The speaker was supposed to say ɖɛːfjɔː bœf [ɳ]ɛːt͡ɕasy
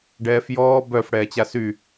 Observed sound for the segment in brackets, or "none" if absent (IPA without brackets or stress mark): ɽ